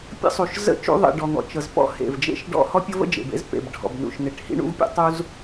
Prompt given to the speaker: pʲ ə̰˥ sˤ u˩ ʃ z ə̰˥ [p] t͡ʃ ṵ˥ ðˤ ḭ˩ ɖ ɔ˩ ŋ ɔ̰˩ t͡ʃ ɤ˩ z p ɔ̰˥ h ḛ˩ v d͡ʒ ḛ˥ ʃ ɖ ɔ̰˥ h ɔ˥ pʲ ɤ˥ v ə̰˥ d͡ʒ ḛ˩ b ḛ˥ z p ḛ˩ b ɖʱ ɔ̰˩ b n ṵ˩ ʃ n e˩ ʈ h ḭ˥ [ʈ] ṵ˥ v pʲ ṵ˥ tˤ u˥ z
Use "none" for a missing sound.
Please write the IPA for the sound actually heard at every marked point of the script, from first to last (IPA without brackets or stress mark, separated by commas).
none, ɳ